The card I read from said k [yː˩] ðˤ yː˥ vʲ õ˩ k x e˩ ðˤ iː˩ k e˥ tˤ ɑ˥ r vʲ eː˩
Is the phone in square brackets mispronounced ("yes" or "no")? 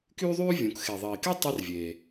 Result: yes